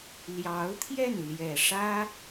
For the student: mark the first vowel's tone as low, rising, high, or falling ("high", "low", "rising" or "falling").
rising